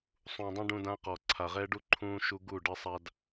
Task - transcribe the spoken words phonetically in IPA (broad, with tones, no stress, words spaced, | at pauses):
sˤũ˨dˤũ˦ ɖũ˦dã˦qɔ˨ ǀʰa˨ʁɛ˦ɖu˦ ǃʰũ˦ ʃu˦ ɡu˦˨ ɖɘ˦sˤa˦d